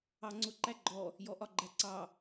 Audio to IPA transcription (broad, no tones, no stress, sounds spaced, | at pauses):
ɑ ŋ͡ǀ ʊ ǃ æ ɡ͡ǃ ɔ | j ɔ ʔ ɒ ɡ͡ǃ æ ǀ ɑ